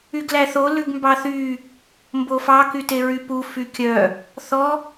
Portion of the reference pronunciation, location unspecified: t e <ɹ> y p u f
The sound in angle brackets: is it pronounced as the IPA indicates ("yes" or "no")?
yes